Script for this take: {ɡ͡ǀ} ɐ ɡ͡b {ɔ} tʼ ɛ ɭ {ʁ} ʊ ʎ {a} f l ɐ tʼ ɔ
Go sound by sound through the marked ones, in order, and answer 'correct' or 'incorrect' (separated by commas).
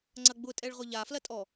incorrect, incorrect, correct, correct